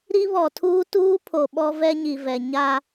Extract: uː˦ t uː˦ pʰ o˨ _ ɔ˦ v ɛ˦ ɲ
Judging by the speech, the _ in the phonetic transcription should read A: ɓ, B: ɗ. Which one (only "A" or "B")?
A